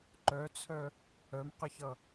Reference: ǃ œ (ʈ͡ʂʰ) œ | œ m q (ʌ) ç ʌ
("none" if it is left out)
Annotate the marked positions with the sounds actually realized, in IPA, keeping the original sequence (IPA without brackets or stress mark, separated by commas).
t͡sʰ, ə